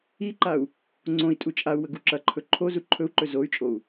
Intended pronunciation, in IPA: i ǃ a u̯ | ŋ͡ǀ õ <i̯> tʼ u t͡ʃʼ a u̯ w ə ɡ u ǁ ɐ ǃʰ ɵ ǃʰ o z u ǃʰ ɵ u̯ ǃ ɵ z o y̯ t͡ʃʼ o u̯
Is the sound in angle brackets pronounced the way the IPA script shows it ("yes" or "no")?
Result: yes